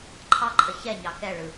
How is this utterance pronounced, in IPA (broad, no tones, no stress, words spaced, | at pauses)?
ǃʰɑǃʰə çɛɲɑ kɛɭɯ